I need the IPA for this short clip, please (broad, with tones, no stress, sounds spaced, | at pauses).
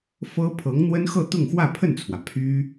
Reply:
f ɤ˥ pʰ ɤ˧˥ ŋ n̪ w ə˥ n x ɤ˥˧ t̪ ʊ˥˧ ŋ x w ä˥˧ pʰ ə˥˩ n t͡sʰ w ä˩ pʰ y˥